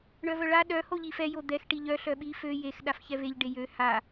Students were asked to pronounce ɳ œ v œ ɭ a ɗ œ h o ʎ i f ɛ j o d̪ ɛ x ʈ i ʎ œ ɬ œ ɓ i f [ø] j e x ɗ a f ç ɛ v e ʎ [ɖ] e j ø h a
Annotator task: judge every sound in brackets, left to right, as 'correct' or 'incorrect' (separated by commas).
correct, correct